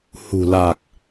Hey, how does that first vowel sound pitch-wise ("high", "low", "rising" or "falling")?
low